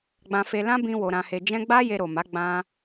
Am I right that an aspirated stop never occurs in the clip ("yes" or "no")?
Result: yes